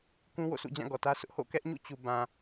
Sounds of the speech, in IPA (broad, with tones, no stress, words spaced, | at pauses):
kũ˦wo̰˦˨sṵ˦˨d͡ʑã˦˨ ɡɔ˨tä˦sʊ˦ʔ ho̰˦˨kɛ˦ʔɲṵ˦˨t͡ɕu˨ bã˨